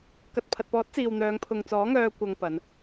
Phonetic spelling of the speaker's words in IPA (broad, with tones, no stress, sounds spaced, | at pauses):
k ɐ˨ t̚ pʰ ɐ˨ t̚ p ɔː˨˥ t̚ t͡s iː˨ w n̪ œː˨˧ ŋ pʰ ʊ˨ ŋ t͡s ɔː˨˥ ŋ œː˧ kʷ ɐ˧ ŋ p ɐ˨˧ n